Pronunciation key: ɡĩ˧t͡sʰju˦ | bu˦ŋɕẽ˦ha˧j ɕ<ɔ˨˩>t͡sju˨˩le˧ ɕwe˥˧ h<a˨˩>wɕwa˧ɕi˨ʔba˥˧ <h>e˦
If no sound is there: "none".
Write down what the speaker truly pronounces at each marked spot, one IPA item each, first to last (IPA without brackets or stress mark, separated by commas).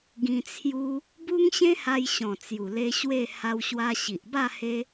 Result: ɔ̃˨˩, a˧, h